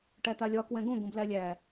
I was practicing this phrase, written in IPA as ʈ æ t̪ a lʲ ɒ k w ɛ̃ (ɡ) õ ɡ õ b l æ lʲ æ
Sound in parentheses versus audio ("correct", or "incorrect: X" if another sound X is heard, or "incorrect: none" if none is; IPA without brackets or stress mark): correct